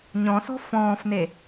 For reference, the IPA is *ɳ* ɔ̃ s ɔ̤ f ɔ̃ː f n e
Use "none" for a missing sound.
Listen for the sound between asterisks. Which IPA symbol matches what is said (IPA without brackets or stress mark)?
ɲ